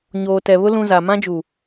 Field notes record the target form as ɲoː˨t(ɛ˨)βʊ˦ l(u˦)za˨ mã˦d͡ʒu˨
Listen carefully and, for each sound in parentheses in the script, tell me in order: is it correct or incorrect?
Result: correct, incorrect: ũ˦

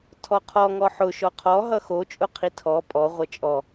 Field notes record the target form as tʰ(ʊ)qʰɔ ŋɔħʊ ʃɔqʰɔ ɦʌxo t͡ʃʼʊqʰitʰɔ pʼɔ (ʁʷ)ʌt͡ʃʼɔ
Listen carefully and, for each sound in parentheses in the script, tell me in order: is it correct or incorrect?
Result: incorrect: ɔ, correct

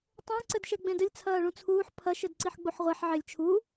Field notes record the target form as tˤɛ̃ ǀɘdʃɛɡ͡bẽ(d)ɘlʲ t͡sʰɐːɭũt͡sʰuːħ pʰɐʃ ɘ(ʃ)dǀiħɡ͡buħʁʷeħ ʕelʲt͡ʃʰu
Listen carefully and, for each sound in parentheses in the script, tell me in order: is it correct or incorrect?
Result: correct, incorrect: none

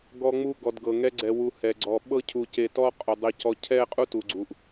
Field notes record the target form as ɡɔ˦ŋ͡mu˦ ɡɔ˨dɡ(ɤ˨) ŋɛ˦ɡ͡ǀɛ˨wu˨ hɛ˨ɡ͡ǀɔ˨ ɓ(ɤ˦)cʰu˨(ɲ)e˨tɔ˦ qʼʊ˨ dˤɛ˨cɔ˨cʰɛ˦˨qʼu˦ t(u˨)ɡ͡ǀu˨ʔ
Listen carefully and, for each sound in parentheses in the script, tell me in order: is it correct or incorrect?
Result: correct, correct, incorrect: c, correct

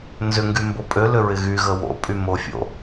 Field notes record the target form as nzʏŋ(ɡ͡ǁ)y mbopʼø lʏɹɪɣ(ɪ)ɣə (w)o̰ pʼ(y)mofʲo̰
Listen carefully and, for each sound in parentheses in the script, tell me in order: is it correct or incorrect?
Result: incorrect: ɡ, incorrect: y, correct, correct

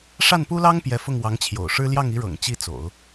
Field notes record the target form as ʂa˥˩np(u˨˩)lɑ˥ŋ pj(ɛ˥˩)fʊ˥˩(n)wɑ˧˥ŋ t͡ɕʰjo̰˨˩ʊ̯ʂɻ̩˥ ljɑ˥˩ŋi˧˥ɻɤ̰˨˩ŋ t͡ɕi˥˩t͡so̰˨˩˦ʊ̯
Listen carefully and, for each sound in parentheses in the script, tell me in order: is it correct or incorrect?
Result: incorrect: u˥, incorrect: ɛ˧˥, incorrect: ŋ

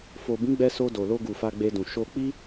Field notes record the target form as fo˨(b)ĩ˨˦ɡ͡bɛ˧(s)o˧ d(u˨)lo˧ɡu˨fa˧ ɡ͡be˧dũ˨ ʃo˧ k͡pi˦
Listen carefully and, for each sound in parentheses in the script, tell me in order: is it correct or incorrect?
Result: correct, correct, incorrect: o˨

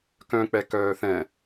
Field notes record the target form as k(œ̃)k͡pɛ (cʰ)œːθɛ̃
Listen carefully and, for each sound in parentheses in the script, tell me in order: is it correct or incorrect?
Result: correct, incorrect: k

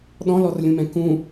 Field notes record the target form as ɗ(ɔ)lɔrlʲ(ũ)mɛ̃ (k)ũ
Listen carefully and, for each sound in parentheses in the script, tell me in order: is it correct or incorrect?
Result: incorrect: ɔ̃, correct, correct

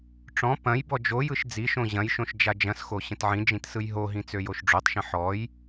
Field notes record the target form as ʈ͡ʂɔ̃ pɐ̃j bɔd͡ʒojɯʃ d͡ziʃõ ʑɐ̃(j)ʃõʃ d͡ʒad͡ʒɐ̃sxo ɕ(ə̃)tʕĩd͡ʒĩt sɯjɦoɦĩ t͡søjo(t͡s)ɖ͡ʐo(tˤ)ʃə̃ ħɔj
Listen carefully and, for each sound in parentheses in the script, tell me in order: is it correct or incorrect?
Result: correct, correct, incorrect: ʃ, correct

